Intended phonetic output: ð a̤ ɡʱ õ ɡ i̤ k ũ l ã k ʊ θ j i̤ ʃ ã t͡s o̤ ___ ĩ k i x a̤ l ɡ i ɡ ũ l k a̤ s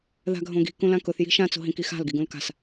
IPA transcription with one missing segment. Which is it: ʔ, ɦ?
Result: ɦ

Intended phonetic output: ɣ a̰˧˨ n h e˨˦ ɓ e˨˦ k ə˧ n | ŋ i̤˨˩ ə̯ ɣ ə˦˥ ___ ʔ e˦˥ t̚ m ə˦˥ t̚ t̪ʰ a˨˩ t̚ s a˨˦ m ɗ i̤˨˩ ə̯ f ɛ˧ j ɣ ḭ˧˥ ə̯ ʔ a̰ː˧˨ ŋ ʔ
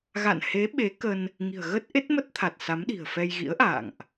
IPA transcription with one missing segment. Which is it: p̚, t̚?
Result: t̚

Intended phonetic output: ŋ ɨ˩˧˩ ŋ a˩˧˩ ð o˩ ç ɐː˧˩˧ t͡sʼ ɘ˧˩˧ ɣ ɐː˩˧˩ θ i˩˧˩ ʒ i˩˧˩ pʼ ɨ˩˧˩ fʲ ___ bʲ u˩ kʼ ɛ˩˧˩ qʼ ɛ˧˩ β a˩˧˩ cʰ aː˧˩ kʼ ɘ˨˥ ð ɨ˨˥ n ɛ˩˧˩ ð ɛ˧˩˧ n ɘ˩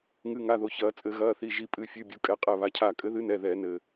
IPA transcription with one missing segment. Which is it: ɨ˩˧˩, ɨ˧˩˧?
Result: ɨ˩˧˩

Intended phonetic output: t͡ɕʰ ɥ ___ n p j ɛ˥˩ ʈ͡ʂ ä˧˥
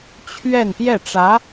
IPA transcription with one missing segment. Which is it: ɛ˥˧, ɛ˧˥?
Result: ɛ˥˧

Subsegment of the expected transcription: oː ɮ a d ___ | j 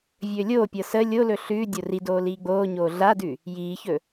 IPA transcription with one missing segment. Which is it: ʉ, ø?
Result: ʉ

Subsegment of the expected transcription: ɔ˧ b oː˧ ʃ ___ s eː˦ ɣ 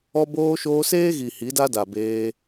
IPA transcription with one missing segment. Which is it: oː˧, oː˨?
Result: oː˧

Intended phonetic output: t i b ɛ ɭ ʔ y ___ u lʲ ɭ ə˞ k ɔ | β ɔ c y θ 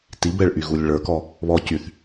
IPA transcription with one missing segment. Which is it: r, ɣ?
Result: ɣ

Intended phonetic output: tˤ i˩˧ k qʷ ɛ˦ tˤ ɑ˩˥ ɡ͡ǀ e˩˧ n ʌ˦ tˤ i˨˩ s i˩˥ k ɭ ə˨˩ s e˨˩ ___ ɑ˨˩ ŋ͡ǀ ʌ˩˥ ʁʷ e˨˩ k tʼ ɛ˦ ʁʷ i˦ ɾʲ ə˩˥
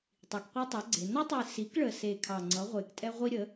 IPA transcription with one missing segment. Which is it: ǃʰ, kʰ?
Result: kʰ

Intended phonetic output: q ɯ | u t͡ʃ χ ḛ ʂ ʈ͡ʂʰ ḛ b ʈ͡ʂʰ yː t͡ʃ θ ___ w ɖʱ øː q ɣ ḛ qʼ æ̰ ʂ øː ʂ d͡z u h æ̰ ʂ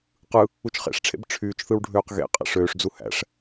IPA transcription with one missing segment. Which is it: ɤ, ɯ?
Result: ɯ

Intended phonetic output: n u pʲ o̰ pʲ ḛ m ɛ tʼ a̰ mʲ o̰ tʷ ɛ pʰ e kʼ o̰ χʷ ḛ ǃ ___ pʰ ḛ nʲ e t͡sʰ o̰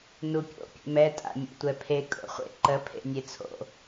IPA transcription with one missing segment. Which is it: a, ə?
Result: ə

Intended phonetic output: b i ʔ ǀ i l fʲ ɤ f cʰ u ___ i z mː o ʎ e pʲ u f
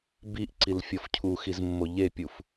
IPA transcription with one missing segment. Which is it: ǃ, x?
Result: x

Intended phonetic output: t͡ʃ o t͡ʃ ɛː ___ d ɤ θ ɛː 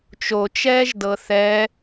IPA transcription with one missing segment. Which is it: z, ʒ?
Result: ʒ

